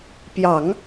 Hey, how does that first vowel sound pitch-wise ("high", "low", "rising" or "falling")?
low